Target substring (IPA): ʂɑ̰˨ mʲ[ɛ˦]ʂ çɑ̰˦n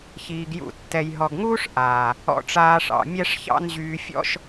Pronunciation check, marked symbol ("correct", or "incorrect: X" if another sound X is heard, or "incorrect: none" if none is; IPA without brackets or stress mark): correct